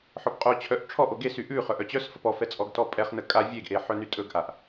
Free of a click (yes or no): yes